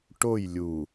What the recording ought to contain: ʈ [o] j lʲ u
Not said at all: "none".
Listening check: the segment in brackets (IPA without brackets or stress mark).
o